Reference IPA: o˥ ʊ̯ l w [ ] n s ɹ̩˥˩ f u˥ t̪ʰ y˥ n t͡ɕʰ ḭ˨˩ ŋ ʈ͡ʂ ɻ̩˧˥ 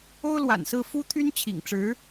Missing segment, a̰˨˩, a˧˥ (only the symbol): a̰˨˩